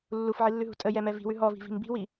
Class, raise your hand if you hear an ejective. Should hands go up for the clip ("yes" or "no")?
yes